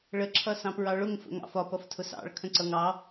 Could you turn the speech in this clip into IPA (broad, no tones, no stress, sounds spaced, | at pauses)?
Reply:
ɭ ə ǁʰ ʌ s ɑ̃ p ɹ ɑ ɭ ʊ ŋ f ə̰ ŋ ɑ̰ f ɒ p ʌ f tʰ ʊ s ɑ̰ ɭ kʰ ə̃ ǀ ʌ ŋ ɑ